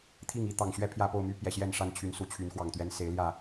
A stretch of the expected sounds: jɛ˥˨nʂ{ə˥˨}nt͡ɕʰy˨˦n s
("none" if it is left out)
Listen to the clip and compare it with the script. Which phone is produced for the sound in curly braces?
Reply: a˥˨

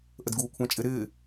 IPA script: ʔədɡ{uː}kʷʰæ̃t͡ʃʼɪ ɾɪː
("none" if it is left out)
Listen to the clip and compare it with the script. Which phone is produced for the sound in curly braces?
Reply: uː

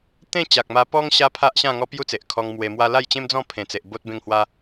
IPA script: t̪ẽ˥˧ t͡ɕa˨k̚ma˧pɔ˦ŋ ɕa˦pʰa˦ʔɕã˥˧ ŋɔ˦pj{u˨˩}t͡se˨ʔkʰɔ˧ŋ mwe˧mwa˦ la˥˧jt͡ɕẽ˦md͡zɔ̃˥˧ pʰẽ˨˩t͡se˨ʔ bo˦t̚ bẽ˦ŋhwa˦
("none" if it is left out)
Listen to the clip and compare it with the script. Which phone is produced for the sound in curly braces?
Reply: u˦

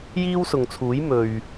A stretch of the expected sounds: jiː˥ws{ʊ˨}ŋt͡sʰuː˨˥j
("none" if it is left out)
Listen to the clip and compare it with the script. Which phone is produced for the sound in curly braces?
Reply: ʊ˨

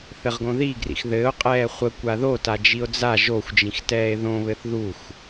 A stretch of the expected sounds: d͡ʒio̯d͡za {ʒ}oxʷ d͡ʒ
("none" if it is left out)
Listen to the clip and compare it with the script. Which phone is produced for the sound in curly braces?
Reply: ʒ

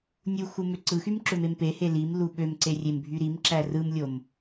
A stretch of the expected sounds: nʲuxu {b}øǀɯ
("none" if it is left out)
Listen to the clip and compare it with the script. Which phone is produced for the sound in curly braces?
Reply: m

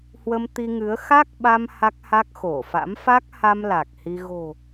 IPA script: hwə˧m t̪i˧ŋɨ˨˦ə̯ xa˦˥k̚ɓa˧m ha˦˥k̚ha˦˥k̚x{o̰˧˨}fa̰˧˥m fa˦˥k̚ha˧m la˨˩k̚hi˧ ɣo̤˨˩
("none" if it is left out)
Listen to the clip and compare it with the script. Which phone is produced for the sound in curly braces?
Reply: o˧˩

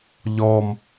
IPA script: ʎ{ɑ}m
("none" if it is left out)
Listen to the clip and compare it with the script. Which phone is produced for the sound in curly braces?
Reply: ɔ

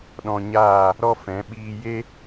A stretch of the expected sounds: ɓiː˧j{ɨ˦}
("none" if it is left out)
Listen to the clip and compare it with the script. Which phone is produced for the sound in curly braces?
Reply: e˦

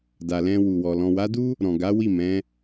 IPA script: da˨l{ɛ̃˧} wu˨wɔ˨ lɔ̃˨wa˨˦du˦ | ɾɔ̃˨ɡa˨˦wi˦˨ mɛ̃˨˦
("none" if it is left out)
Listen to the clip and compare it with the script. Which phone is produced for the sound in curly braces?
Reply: ɛ̃˧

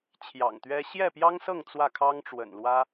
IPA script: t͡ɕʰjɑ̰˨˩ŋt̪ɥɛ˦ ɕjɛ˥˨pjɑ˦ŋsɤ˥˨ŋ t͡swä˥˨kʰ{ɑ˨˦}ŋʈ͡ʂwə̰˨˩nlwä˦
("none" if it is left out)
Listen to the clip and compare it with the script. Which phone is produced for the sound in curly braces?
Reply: ɑ˦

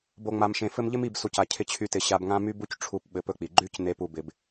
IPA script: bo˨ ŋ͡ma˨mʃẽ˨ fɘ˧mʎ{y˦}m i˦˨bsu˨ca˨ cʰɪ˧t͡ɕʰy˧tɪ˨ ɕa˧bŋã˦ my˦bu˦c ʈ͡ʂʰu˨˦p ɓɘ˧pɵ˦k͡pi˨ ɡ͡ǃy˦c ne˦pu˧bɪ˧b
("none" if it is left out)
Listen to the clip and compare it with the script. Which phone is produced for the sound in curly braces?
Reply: ɪ˦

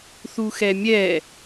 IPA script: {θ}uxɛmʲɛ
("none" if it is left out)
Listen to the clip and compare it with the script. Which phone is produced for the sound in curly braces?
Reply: θ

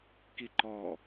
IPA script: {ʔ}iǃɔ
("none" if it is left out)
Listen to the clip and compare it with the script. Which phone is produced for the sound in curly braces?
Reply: k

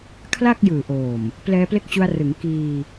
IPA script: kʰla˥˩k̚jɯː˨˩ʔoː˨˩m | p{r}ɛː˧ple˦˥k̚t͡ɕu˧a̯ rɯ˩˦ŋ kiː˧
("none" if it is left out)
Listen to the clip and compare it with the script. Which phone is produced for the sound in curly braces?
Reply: l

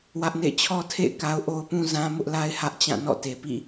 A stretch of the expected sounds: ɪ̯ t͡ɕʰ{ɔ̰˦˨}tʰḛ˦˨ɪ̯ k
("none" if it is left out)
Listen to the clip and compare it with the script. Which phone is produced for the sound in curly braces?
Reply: ɔ˦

